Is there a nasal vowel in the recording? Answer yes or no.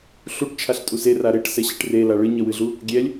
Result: no